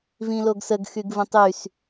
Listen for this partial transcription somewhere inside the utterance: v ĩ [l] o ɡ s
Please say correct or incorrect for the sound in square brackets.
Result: correct